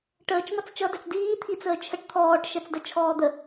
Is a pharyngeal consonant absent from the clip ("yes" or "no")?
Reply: yes